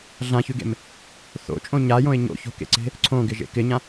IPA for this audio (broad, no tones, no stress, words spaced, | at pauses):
ɮãçʉɡḛm | θo̰t͡ʃʼõ ɲajõɪ̯ ɲo̰ço̤kḛǀe̤ | ǀʰõɡɪʒḛ kɪɲã